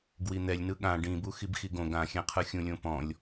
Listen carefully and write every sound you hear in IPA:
ɡwin̪ɛlʲnɯ ɠã ɖĩbuxib xiɡõ ɡãxʲɛ̃qʰɯxʲũ lʲõpɔ̃lʲ

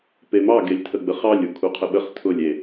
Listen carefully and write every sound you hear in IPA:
pemɑ ɡelʲtʰəɡ͡bəχɑlʲ ukʰuqʰəɓəχ tʰʊlʲ e

